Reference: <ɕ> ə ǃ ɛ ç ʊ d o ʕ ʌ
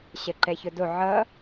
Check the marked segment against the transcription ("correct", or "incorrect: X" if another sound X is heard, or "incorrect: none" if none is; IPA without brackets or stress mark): correct